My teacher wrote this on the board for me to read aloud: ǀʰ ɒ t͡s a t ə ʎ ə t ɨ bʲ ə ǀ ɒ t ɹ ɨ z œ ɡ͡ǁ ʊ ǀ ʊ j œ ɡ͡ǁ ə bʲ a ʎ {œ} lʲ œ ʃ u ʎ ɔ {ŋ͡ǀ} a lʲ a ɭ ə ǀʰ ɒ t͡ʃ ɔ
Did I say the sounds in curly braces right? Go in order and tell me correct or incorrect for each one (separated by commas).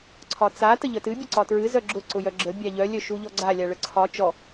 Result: correct, incorrect